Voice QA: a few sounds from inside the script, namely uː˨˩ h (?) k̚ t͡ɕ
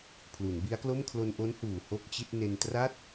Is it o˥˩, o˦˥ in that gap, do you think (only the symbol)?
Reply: o˥˩